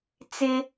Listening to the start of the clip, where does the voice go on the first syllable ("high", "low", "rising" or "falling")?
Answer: high